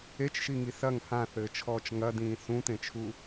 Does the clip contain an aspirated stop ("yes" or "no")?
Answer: yes